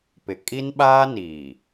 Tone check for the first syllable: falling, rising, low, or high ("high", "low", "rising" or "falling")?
low